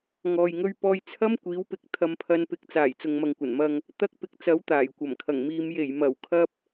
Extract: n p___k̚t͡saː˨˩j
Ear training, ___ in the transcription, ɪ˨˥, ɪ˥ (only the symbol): ɪ˨˥